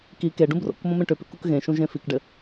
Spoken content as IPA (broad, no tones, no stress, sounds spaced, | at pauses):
k i k e ɖ ũ b r o̰ k m õ m ẽ ʈ ʏ p ʏ k u k ɣ ẽ ʃ ũ ʒ ẽ f i k ɖ ɘ